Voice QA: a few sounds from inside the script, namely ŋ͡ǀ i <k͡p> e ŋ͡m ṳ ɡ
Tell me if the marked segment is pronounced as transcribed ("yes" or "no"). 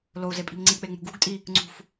yes